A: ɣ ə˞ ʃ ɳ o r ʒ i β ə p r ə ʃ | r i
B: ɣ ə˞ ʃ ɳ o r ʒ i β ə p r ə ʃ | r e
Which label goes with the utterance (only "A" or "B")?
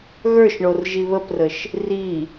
A